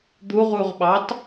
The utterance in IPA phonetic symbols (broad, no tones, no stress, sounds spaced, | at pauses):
d̪ u ʁ u ʁ ɓ ɑ t